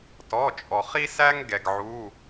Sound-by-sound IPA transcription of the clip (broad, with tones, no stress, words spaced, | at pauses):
tɔ˩˧˩t͡ʃʼɔ˩ χi˥sæ˥ŋ ɡɛ˩ɡʕu˩˧˩